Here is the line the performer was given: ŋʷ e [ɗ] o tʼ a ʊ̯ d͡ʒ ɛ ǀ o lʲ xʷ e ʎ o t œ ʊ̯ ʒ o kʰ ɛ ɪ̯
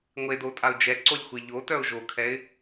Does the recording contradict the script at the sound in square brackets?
yes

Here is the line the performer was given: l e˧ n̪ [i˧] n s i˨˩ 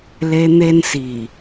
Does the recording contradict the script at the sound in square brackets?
yes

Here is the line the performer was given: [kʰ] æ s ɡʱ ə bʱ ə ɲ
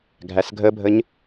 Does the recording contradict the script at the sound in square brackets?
yes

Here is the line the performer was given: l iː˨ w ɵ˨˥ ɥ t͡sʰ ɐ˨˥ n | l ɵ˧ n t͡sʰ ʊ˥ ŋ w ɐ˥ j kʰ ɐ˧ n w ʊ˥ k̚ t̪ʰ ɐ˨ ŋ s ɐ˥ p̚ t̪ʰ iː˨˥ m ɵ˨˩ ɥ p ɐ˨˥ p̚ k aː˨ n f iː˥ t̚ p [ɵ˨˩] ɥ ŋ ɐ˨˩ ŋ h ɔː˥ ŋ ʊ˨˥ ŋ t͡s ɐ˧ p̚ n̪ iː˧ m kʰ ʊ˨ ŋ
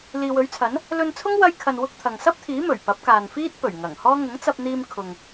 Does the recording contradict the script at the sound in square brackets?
no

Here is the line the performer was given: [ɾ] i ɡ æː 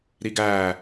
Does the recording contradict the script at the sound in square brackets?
no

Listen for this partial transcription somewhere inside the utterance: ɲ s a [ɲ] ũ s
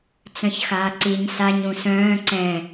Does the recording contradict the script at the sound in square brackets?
no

